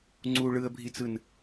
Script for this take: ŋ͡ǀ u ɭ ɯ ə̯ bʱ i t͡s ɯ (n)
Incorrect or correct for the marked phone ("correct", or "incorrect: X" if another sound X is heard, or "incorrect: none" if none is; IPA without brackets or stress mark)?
correct